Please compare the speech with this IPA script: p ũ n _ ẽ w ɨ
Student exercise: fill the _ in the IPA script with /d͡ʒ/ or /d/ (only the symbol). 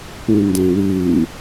d